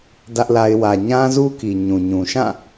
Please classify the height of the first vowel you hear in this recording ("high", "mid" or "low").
low